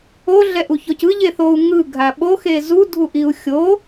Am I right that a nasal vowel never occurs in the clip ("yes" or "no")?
yes